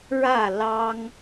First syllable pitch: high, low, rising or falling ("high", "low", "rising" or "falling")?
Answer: falling